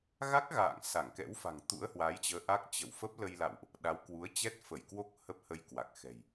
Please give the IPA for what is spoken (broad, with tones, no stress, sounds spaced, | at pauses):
ɣ a˦˥ k̚ ɣ a̰ː˧˨ ŋ s a˧˩ ŋ k ɛ̰˧˥ w f a̤˨˩ ŋ t̪ ṵ˧˥ ə̯ h w a˨˦ j t͡ɕ əː˨˦ ʔ a˦˥ k̚ t͡ɕ ə̰˧˨ w f ə˦˥ p̚ l ə˧ j l a̰˧˨ w ʔ | ɗ a˨˦ w k w u˨˦ ə̯ t͡ɕ ɛ˦˥ t̚ f ə˧˩ j k w o˦˥ k̚ h ə˦˥ p̚ h ə˧ j k w a˨˩ k̚ x ɛ̤˨˩ j